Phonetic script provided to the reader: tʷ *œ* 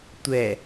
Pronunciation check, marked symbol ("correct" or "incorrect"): incorrect